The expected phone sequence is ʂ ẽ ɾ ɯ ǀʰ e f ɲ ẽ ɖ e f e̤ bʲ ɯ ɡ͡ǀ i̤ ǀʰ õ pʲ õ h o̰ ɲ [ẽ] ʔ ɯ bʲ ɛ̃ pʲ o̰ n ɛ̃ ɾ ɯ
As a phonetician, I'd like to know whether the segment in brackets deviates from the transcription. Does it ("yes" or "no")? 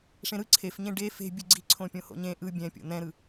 no